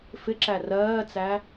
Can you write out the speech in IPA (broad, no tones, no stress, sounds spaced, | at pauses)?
f ɪ ǁ æ r ɜː t͡s æ